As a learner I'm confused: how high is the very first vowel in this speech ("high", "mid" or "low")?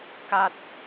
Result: low